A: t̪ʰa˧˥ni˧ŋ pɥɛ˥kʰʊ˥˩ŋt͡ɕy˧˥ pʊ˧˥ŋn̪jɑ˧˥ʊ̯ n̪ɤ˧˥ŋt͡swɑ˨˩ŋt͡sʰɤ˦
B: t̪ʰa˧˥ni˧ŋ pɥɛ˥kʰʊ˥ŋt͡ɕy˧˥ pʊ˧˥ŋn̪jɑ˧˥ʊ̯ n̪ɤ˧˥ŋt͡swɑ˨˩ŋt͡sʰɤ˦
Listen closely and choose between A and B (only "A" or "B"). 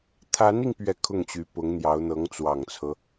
A